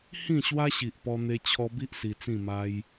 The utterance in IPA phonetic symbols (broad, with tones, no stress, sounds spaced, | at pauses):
h ĩ˥˧ ɕ w a˦ ɕ i˨ ʔ p ɔ˧ n̪ e˧ t͡ɕʰ ɔ˧ b i˦ ʔ s i˧ t͡s ĩ˥˧ m a˦ j